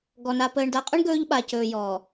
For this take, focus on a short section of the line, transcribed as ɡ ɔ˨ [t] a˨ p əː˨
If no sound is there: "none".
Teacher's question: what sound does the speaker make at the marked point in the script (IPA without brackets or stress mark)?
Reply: n